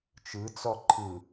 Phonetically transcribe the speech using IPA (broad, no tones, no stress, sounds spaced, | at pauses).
t͡ʃ ɯ t͡s ɔ ǃʰ ɯ